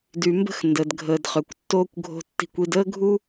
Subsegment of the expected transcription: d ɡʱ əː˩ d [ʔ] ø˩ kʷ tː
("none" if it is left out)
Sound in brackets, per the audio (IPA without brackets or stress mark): χ